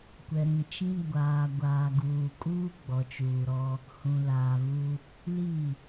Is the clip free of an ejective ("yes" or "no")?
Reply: no